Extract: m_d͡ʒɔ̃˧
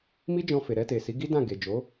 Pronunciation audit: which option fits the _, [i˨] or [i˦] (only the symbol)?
i˦